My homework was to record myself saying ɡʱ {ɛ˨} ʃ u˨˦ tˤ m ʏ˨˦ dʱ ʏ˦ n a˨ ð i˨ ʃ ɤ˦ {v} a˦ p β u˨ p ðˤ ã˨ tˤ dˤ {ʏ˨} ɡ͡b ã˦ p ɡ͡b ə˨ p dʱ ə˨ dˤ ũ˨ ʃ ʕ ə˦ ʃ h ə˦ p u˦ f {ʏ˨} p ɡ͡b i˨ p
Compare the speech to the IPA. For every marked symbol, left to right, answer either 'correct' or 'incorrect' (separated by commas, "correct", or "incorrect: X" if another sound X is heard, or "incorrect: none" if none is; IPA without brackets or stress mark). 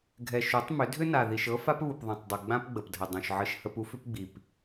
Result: correct, incorrect: f, correct, incorrect: ʏ˦